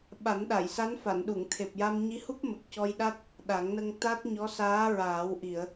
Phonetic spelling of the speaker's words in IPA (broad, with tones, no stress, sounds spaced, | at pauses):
ɓ a˨˩˦ n ɗ a˨˩˨ j s a˧˥ n f a˨˩˨ n ɗ u˨˩˨ ŋ t̪ʰ e˨˩ p̚ j a˧ m ɲ i˧˥ h u˦˥ p̚ m ə˨˩ k̚ c ɔ˧ j ɗ a˦˥ t̚ | ɗ a˨˩˦ ŋ n ə˧ ŋ t̪ a˦˥ t̚ ɲ ɔ˧˥ s aː˧˥ ɹ aː˨˩˦ w ʔ i˨˩˨ ə̯